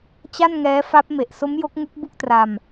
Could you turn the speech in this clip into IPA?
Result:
t͡ɕ a˥˩ n ŋ ɛː˦˥ f a˦˥ p̚ m e˨˩ ʔ s o˦˥ m j o˦˥ k̚ ŋ u˦˥ k̚ b u˥˩ k̚ t r a˧ m

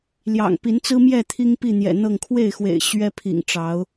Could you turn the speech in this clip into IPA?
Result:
l j ɑ̰˨˩ ŋ p i˨˦ n t͡s ɹ̩˦ m j ɛ˥˨ t̪ʰ i˦ ŋ p i˥˨ n̪ j ɛ̰˨˩ n̪ ɤ˥˨ ŋ kʰ w e˥˨ ɪ̯ x w ḛ˨˩ ɪ̯ ɕ ɥ ɛ˦ pʰ ḭ˨˩ ŋ ʈ͡ʂ ɑ˨˦ ʊ̯

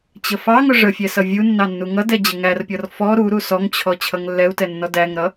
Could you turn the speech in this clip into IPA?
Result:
t͡ɕ ə f ɑ ŋ ʊ ʐ ə fʲ ɛ s ʌ vʲ u nː ɑ nː u ŋ ʌ d ɛ d͡ʑ ə ŋ æ r pʲ ɔ r f ɔ ɾ u ɾ u s ɔ ŋ t͡ɕʰ ɔ t͡ɕʰ ʌ ŋ lː ɛ u̯ t ɛ nː ɔ d æ ŋ ɾ ʌ

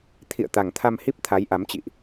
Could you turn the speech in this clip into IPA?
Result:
t̪ʰ ḭ˧˨ ə̯ t̪ a˨˩ ŋ t̪ʰ a˧ m h i˦˥ p̚ t̪ʰ a˨˦ j ʔ a˨˦ m t͡ɕ ḭ˧˨ ʔ

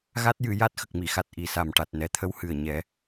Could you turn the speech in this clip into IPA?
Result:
ɣ a˦˥ t̚ j ɨ˨˩˨ j a˦˥ t̚ x ə˨˩ k̚ m i˨˩˨ x a˨˩ t̚ ʔ i˨˩ s a˨˩ m ʈ a˨˩ t̚ n ɛ˨˩ t̪ʰ ə˧ w h ɨ˨˩ ə̯ ɲ ɛ˨˩˦

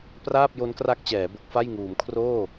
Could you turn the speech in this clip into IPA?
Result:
p r aː˥˩ p̚ j o˦˥ n k r a˦˥ k̚ t͡ɕ ɛː˩˦ b o˦˥ k̚ f a˥˩ j ŋ uː˩˦ m kʰ r oː˥˩

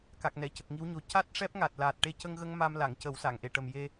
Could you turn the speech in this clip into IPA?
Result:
k a˨˩ k̚ n ɛ˨˩˨ c ə˨˩ k̚ ŋ i˧˥ w ɲ o˨˩˦ c a˦˥ t̚ ʂ ɛ˦˥ p̚ ŋ a˨˩ t̚ l aː˨˩ t̚ ʈ e˧ c ə˧ ŋ ɣ ə˧ ŋ m a˧ m l a˨˩˨ ŋ c ə˨˩˦ w s a˨˩˨ ŋ ʔ e˨˩˨ ʈ ə˨˩ m j e˧

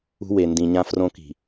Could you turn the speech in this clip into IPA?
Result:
ṳ˦ w e˨ n d ĩ˨ ɲ ã˦ f r õ˦ k i̤˨

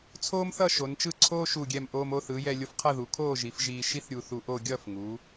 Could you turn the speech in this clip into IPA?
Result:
t͡sʰ oː˥ m θ ʌ˥˧ ʃ o˩˧ n t͡ʃ ɯ˥˧ ǀʰ oː˥ ʃ u˧˩ ɡʲ ɛ˧˩ m ʔ oː˧ m o˥˧ θ ɯ˩˧ j ɛ˧ lʲ o˧ f qʰ ʌ˥˧ ð u˩˧ kʰ oː˥˧ ʒ i˩˧ f ʒ iː˧ ʃ i˥ θ ɾʲ u˧ θ u˧ ʔ oː˥˧ ɡʲ ʌː˥˧ f ŋ uː˩˧

